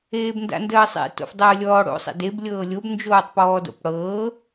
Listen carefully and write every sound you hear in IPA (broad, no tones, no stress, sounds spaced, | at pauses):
eː b n d a̰ n d əː sˤ ḛ t o̰ f dˤ əː lʲ ɔː ɽ o̰ sˤ ḛ d e b lʲ ɤː lʲ o b n d͡ʒ oː tˤ p ɔː d o̰ p ɽ ɤː